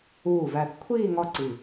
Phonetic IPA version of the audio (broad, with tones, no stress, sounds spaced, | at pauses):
uː˧˩ v æ˧˩ θ kʷʰ iː˥˧ ŋ ɒ˥˧ ǀ i˧˩